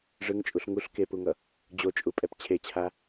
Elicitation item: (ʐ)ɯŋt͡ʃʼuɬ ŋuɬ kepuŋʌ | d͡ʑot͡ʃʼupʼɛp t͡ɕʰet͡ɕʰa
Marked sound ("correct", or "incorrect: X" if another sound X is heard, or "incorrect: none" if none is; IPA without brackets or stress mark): correct